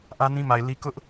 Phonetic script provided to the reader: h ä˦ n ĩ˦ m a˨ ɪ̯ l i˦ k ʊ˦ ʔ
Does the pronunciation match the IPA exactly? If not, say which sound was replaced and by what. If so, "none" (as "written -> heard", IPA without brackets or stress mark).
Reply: h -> ʔ